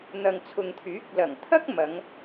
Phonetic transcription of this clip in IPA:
n̪ɐ˨ŋt͡sʰʊ˨ŋt̪ʰyː˨˥k̚ lɐ˨˩ŋt̪ʰɐ˥k̚ mɐ˨˧ŋ

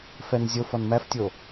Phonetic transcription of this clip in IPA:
fɛnzʲof ɔnmæftʲo

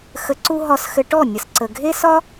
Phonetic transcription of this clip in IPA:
xə˧ǀu˦ ɦɒ˧sxɘ˧ʈɔ˦˨ nʲə˨sǀə˨ɡʱe˦sɒ˦

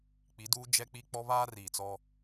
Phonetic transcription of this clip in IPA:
k͡pi˨˦duː˦ d͡ʒɛ˦k͡pi˦ k͡pɔ˦βaː˦riː˨t͡sɔ˦

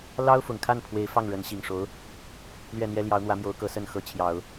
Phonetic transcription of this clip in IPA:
lɑ˥ʊ̯fʊ˨˩ŋkʰa˥˩n pʰwe˧˥ɪ̯fɑ˥˩ŋ ɻə˧˥nɕi˨˩ŋʂo˧˥ʊ̯ | lɥɛ˥˩n̪jɛ˥ ljɑ˧˥ʊ̯n̪wä˧˥mjo˧˥ʊ̯kɤ˧˥ sə˥˩nxɤ˧˥t͡ɕʰjɑ˨˩˦ʊ̯

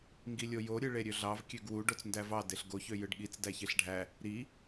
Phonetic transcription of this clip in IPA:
ŋɡilʲojo ɾʲɯɭeɾʲøɮɑv kʲøɡwu ɖot͡sndævɑ deɬɡo çøjɯɖɠit͡s dæçeɬɖʱæ | ɾi

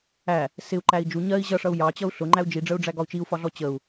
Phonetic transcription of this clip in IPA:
æ | sɪu̯ǃæi̯ d͡ʒu ɲɜi̯ ʑʌʂʌu̯ jɑt͡ɕʌu̯ ɬʊŋ͡ǃæu̯ d͡ʒiɖ͡ʐəu̯ɖ͡ʐæ ɡɒu̯t͡ʃiu̯fɒɮɔ t͡ɕəu̯

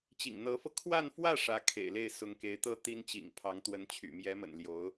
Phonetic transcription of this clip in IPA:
t͡ɕḭ˨˩ŋ n̪ɤ˧˥fɤ˧ kʰwa˥˧nfwä˥˩ ʂä˧˥ kʰḛ˨˩ɪ̯le˥˩ɪ̯ sʊ˧˥ŋke˧˥ɪ̯t̪ɤ˥ t̪i˥nt͡ɕḭ˨˩ŋ pʰɑ˧˥ŋt̪wə˧˥nt͡ɕʰy̰˨˩ mjɛ˧˥mə̰˨˩nljo˧˥ʊ̯

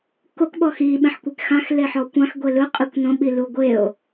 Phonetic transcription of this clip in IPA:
kok ɓɔxi ɓẽħkʷekxãx leħɔkʷãx ɡʷelɯ qʼikʷnõ ɓiluɡʷeo̯

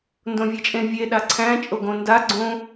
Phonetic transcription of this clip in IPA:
ndõvʲet͡ʃʼẽvʲe ɗaǀʰæ̃ t͡ʃʼoɡõnda ɡ͡ǀõ

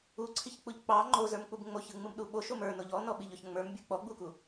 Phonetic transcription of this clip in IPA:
uǀʰiçk͡puʎ k͡pɑ ŋ͡ǃozə˞mk͡pub ŋ͡moçɯŋ͡mɯmɗu ɓoʃom ə˞noʎ ɔnɔɓiʎɔç ŋ͡mə˞mbʲə˞ k͡pɔɡ͡buku

